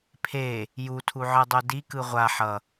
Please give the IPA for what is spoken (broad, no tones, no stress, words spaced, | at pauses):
pʰe | jutʰuʕɯdˤu dikɯ ʁʷa ħʌ